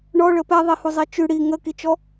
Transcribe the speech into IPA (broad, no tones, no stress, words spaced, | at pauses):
ɳɔɭə pɛðˤihuzˤi t͡ʃʉ ɽi ŋəkit͡ʃɔ